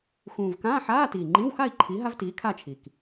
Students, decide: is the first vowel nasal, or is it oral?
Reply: nasal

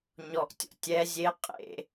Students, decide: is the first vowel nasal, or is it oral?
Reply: oral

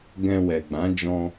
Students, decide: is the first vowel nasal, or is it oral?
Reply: nasal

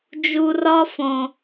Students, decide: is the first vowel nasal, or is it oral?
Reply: oral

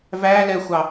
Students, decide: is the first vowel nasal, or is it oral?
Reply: oral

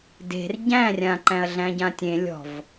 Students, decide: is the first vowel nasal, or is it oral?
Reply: oral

